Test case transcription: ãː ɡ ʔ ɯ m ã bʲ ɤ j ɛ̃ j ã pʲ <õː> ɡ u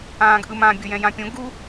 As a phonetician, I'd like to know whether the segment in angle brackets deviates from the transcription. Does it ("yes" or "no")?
yes